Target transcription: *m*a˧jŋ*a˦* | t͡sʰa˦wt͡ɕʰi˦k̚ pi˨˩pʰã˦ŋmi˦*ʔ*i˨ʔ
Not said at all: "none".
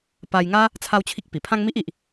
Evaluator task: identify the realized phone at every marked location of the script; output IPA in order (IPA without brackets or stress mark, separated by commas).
p, a˦, ʔ